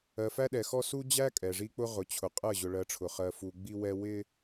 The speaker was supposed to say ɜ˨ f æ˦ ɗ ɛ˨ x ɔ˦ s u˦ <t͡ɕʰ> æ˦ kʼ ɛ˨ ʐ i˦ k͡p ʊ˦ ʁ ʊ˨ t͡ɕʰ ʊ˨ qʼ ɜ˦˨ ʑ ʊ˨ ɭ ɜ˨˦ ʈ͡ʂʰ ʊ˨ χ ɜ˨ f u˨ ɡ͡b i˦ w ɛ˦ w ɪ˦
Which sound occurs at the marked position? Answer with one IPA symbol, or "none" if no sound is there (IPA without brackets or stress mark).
d͡ʑ